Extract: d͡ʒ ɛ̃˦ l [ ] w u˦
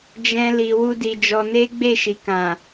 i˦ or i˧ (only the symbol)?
i˧